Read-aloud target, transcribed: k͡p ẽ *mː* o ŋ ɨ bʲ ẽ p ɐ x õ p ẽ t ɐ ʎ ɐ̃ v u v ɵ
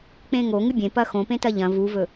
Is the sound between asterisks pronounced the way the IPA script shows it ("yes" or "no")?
no